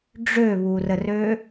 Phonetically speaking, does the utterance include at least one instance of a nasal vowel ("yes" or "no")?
no